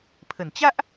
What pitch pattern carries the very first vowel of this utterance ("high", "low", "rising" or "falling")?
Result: low